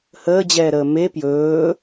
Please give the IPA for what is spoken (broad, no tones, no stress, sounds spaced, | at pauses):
h əː d͡ʑ ɛː ɾ əː m e p j ɵː